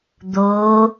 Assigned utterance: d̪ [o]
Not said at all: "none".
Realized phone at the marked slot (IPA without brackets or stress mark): o